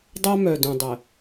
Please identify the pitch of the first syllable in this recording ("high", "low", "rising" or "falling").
high